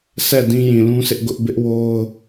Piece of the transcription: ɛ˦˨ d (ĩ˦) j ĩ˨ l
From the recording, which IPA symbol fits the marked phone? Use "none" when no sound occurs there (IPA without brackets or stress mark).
ĩ˦